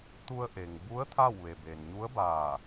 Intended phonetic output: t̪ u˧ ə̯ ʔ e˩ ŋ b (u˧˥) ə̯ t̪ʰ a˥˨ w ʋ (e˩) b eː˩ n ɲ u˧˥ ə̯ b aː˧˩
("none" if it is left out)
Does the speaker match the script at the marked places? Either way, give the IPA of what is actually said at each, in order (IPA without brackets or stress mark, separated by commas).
u˧˥, e˩